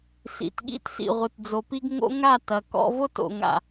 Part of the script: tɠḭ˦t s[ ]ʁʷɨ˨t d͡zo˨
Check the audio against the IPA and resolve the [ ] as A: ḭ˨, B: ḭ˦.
A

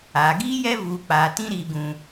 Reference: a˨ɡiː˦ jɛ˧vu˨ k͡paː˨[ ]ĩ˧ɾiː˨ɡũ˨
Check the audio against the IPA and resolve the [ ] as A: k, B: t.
B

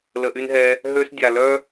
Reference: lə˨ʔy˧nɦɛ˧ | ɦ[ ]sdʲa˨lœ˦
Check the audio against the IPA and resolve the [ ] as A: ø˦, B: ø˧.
B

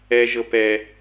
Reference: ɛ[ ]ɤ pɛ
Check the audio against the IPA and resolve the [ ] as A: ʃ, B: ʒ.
B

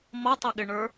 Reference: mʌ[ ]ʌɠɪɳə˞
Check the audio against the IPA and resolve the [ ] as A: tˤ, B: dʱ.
A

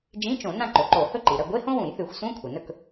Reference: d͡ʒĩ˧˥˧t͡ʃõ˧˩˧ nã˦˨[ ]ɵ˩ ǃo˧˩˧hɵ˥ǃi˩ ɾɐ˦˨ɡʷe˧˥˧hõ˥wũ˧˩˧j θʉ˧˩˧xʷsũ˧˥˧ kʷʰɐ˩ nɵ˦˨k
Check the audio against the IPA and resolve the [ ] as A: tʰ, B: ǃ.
B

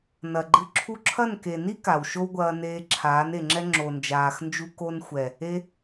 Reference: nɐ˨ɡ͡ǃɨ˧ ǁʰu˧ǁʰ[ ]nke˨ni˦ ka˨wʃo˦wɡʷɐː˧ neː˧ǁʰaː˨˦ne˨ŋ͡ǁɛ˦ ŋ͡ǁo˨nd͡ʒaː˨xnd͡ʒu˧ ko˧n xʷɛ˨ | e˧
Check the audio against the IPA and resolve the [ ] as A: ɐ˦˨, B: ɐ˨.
A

